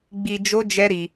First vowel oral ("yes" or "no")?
yes